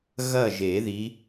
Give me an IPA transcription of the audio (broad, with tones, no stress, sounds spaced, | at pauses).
ɣ ɐ˥˨ ʒ e˨˩˦ ð i˨˦